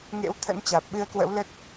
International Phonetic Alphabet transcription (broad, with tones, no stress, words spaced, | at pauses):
ŋḛ˧˥wt̪ʰə̰˧˥nt͡ɕaː˨˩p̚ ɓɨ˧ə̯kwə̰˧˥wlə˦˥t̚